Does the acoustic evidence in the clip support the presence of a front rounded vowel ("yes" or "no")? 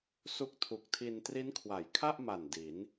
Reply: no